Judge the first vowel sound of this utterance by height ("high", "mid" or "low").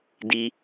high